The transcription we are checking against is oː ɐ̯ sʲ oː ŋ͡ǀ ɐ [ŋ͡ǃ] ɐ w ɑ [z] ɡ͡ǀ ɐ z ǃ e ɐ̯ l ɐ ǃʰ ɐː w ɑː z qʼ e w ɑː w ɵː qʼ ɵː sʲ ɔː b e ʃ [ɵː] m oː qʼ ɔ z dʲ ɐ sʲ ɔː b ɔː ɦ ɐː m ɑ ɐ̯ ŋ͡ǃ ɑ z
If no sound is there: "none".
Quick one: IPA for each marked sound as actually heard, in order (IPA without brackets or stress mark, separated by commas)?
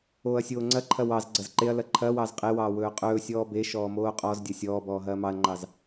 ǃʰ, z, ɔː